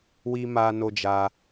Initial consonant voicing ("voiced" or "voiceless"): voiced